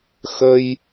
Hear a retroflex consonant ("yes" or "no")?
no